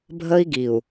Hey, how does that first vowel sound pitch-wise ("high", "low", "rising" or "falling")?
high